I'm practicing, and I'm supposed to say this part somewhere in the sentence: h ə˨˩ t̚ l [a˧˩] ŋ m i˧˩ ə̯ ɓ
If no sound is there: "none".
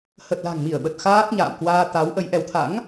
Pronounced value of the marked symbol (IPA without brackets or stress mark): a̤˨˩